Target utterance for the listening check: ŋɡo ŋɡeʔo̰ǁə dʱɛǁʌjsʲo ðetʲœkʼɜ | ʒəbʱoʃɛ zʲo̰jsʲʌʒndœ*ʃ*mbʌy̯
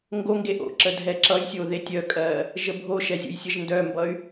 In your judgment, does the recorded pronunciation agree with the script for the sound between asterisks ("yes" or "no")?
no